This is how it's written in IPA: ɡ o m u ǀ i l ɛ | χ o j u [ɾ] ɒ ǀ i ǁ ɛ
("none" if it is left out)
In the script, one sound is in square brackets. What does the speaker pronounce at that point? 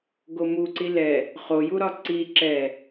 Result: ɾ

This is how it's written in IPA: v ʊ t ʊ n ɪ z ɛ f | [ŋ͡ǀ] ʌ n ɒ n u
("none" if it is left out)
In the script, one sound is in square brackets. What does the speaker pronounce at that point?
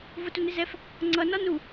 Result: ŋ͡ǀ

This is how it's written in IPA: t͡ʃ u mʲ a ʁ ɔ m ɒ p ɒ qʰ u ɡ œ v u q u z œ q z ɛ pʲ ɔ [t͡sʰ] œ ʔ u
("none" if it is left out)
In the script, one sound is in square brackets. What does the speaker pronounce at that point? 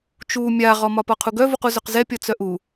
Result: t͡s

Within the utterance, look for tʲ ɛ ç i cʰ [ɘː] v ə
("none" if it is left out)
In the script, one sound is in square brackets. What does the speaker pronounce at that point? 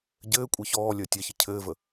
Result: ɘː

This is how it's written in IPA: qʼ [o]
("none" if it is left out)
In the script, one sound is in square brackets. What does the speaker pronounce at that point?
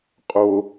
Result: o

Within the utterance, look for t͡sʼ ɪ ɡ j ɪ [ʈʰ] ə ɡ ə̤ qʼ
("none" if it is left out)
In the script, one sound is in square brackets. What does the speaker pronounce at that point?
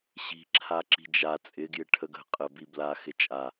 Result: ʈʰ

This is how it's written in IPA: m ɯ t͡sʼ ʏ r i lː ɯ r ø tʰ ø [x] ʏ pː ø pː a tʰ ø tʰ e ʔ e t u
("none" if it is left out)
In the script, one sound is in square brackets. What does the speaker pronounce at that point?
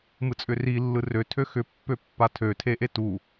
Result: x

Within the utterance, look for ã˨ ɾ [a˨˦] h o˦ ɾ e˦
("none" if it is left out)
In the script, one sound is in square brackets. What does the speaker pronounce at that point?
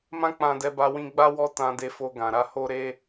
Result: a˧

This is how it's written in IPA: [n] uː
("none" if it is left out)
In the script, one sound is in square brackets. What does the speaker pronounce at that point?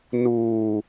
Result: n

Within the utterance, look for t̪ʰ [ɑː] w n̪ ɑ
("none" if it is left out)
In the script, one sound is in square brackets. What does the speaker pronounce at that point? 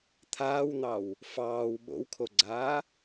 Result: aː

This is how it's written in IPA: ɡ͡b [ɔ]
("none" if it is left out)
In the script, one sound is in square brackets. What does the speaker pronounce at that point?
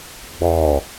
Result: ɔ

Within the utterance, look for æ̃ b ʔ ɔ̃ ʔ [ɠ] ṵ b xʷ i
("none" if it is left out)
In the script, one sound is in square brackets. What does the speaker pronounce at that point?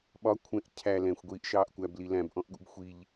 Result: ɠ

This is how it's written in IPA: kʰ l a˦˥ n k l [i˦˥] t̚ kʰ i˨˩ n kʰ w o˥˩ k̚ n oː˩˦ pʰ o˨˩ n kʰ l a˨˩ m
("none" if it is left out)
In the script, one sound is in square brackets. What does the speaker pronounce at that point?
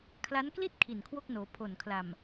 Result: i˥˩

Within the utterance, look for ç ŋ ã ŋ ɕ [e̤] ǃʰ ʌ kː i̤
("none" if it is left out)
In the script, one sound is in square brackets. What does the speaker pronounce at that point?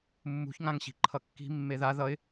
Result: i̤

